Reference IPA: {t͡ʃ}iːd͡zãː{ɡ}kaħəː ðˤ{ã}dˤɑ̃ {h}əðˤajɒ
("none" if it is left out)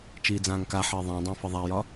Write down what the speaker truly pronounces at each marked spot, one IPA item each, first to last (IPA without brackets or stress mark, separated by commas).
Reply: t͡ʃ, ŋ, ã, f